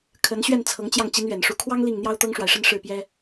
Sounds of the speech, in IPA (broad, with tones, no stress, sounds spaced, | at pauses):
kʰ ə˧˥ n ɕ ɥ ɛ˥˩ n t͡sʰ ɤ˧˥ ŋ t͡ɕ j ɑ˥˩ ŋ t͡ɕ i˧˥ n ɥ ɛ˨˩ n ʂ u˧˥ kʰ w ɑ˥ ŋ l i˥˩ ŋ n̪ j ɑ˥ ʊ̯ t̪ ɤ˥ ŋ ʂ w a˨ ɪ̯ ʂ ə˥˧ n ʂ ɻ̩˥˩ p j ɛ˥